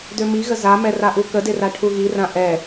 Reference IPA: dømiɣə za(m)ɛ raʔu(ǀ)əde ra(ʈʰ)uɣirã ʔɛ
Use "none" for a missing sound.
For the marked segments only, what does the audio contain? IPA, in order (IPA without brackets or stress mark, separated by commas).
m, k, ʈʰ